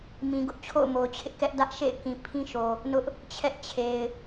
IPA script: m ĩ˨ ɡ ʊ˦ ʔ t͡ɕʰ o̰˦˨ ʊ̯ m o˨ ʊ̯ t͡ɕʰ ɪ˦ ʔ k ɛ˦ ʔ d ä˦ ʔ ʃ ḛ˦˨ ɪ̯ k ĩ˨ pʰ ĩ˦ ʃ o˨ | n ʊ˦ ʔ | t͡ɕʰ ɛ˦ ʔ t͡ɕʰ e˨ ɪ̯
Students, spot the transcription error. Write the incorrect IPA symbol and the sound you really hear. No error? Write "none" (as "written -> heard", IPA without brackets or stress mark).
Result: none